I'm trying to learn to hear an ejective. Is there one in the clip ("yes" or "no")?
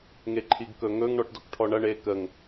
no